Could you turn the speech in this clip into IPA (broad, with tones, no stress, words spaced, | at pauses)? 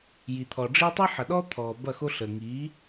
ji˨t̪ʰɔ˨ɖ͡ʐi˦ tˤi˦ħɐ˨ɗɔ˦ t̪ʰɔː˨bɐ˦˨xo˦ ɬəː˨ŋiː˨˦